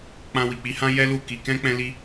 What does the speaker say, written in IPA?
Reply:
k͡p ã˧ w i˨ k͡p i˧ h ã˦ j ɛ˦ l u˦˨ k i˧ k ɛ̃˦ k͡p ɛ̃˦ l i˦

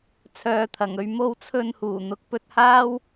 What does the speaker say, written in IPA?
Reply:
t͡sʰ œː˨˧ t̪ʰ ɐ˨˩ ŋ ɵ˧ ɥ m o˧ w t͡sʰ ɵ˧ n h uː˨˩ n̪ ʊ˨˥ k̚ p ɵ˧ t̚ h aː˥ w

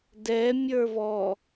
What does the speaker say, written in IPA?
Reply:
d ɛ mʲ ə˞ v ɔ

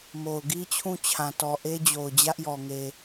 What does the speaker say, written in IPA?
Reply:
m o˨ ʊ̯ ɡ i˦ t͡ɕʰ ũ˦˨ t͡ɕʰ ã˨ t ɔ˨ ʔ e˦ d͡ʑ o˨ ʊ̯ d͡ʑ ä˦ ʔ j ɔ˨ ŋ e˨

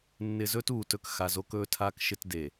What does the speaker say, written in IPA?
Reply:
nː ɪ˨ z ɵ˦ t uː˨ t ɵ˦ k x a˨ z o˦ k ɵː˦ tʰ aː˦ k ʃ ɪ˦ t d e˨

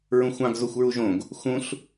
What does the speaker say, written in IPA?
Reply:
ɹ ũ xʷ ɑ̃ ɡ z o xʷ ɹ u ʒ õ ɡ | x ũ ɬ

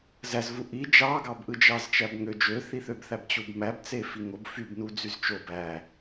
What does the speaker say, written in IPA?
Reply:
z æ z v u ʔ i d͡ʒ ɑ ɡ ɑ b ʔ ɯ d͡ʒ ɑ z t͡ʃ æ b ŋ ø d͡ʒ ø θ i θ ø b θ æ b t͡ɕ u b m æ b t͡s e f i ŋ o b f y b n u d͡z y z t͡ʃ o b æ

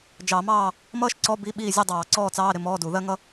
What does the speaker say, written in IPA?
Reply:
d͡ʒ ɑ˧˩˧ m ɑː˥˨ | m ʌː˥ ʃ ǀ ɔ˧˥˧ b i˧˥˧ ɓ iː˥˨ zʲ ʌ˥˨ dˤ ɑː˧˩˧ ǀ ɔː˥˨ t͡s ɑː˧˥˧ ɾ ɪ˧˥˧ m ɔː˧˥˧ d u˧˩˧ ð ɜ˥ ŋ ʌ˥

